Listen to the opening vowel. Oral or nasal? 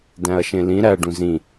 nasal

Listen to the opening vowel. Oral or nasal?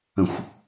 nasal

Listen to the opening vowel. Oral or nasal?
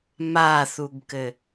oral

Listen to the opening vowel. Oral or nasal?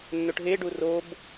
oral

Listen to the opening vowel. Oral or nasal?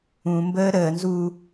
nasal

